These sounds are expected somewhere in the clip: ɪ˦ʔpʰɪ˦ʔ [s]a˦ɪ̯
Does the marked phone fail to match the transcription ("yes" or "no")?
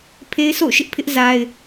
yes